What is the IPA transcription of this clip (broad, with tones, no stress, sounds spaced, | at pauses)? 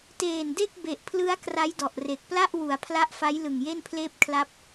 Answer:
t eː˨˩ n d e˥˩ k̚ b e˨˩ ʔ pʰ l ɯ˦˥ a̯ k r a˦˥ j d ɔ˨˩ ʔ r e˨˩ k̚ p l a˥˩ ʔ w u˩˦ a̯ pʰ l a˦˥ ʔ f a˦˥ j l ɯ˨˩ ŋ j e˥˩ n pʰ l eː˥˩ p̚ kʰ l a˥˩ p̚